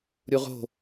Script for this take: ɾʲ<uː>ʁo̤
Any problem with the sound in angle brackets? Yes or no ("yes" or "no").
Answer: yes